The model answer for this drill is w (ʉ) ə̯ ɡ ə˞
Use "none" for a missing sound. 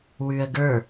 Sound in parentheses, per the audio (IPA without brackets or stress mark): ʉ